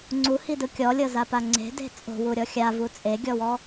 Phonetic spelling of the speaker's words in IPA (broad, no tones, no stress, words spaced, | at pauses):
ŋ͡ǀuhidɯ kʲɔlʲɤzapa ŋ͡ǀe̤de̤ t͡sʼo̤wuɾʲɔ xʲavu t͡sʼeɡʲɔwɔ